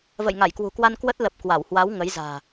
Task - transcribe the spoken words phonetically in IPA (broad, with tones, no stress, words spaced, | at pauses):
və̰˧˨jŋa˧˩jkwṳ˨˩kwa˧n kwə˦˥t̚lə˨˩p̚ kwa˧˩whwa˨˦w ŋə˨˦jza̤ː˨˩